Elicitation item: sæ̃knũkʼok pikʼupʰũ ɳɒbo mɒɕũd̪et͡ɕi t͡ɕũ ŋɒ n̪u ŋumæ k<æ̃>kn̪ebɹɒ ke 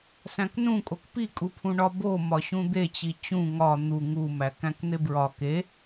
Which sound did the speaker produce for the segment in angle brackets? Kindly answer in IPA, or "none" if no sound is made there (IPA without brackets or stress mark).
æ̃